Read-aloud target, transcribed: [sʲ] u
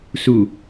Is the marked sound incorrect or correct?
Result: incorrect